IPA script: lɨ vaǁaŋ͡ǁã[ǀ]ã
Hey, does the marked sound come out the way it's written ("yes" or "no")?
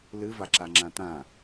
no